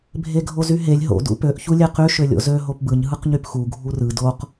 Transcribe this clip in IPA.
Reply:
bʱ e ɡʱ o z y ɦ e lʲ ɦ o̰ d ṵ p ø ʔ ç u lʲ e q y ʃ ø lʲ o̰ z ø ɦ o p b ɯ ɲ ɦ ɯ q ɲ y p x u ɡʱ u r ɯ d o q

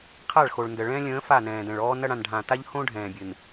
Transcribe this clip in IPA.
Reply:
qʰ a˦˨ ɭ x o˨ ɭ n d ə˨ ɭ ɛ̃ː˦ lʲ ə̃ː˨˦ f a˦˨ n ɛ̃ː˨ d ɛ̃˨ ɭ ɔː˦ n ɐ˦ ɽ ã˨ n ɖʱ ã˨ t a˦ ʎ h õ˦ ɖʱ ɛ̃ː˨ bʲ ɨ˨ n

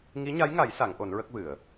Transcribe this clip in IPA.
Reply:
ŋ i˧˥ ɲ a˧˥ j ŋ a˨˩˦ j s a˨˩˦ ŋ ʔ o˨˩˦ n ɹ ə˦˥ k̚ v ɨ˨˩˨ ə̯

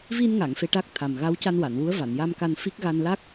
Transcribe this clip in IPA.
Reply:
v i˧ n ŋ a˨˩˨ ŋ f e˧ ʈ aː˦˥ k̚ t̪ʰ a˨˩ m ɣ a˧˥ w c a˧ n w a˨˩˨ n w u˧˥ ə̯ v a˨˩˨ n j a˧ m k a˧ n f i˦˥ k̚ ɣ a˧ n l a˦˥ k̚

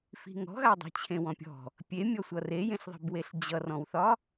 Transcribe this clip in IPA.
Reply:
f i̤ ŋ ɔ̤ ɣ a dˤ i̤ t͡ɕʰ ẽ w ɔ̃ pʲ ɔ̤ | pʲ e mʲ ɔ sʷ ʌ r e j ẽ ɬ ðˤ i̤ b w e ɬ d͡ʑ ʌ r ɔ̃ w θ ɒ

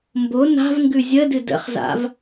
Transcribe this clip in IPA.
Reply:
m b o n a̤ v ŋ ɡ ʉ zʲ ə d ɨ d ə̰ χ z a̰ v

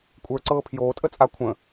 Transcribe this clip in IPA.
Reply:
kʷʼ ə˞ ǀ ɤː pʰ j oː tʼ ə t͡sʼ a kʷʰ ə̃

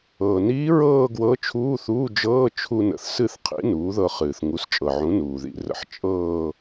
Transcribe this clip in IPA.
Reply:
ɤː˩ n iː˧˥ ɹ ɤː˥˧ ɡ w ɤ˧˥ t͡ʃʰ uː˧˥˧ θ uː˧˥˧ d͡ʒ ɤː˧˥˧ t͡ʃʰ u˧ n ə̰˩˥ θ s ɨ˥˧ θ qʰ ḭ˧˥ n uː˩˥ ð ɤ˧ χ ɨː˩ θ ŋ u˩˥ s t͡ʃʼ ɤ˩ ʕ ũ˩˥ n uː˩ ð ḭ˧˥˧ r ə̰˧ ħ t͡ʃʼ ɤː˥˧

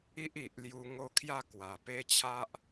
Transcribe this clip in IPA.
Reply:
i˦ ʔ i˨ ʔ l j u˧ ŋ o˦ kʰ j a˥˧ k w a˨˩ p e˦ t͡ɕʰ a˦ ʔ

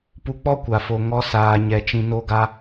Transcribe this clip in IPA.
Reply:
p u˧ k͡p ɔ˦ kʷ a˨ f o˨ ŋ ɔ˧ s aː˨ ɲ ɛ˨ t͡ʃ ĩ˨ n o˧ ɡ a˧

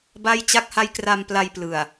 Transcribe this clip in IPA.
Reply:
b a˥˩ j t͡ɕ a˦˥ k̚ h a˦˥ j k r a˧ m p l a˧ j p l ɯ˨˩ a̯

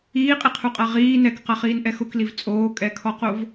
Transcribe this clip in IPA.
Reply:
iː qʼ i qʰ u qʼ a ʁ iː n ɛ k q a χ iː n ʔ ɛ x ʊ k l i v t͡sʼ oː kʼ ɛ kʰ ɔ q o v

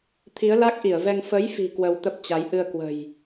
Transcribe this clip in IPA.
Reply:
t̪ʰ i˨˦ ə̯ l a˦˥ k̚ ʔ i˧˩ ə̯ v ɛ˧ ŋ f ə˨˦ j f i̤˨˩ k w ə˧ w t̪ ə˦˥ p̚ t͡ɕ a˨˦ j ʔ ɨ˧ ə̯ k w ə̤˨˩ j

